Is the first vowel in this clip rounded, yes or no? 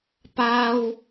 no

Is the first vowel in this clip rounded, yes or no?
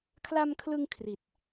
no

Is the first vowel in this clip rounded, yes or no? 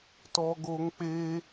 yes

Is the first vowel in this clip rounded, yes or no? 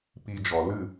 no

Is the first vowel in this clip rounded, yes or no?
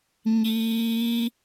no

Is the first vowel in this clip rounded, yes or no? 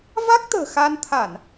no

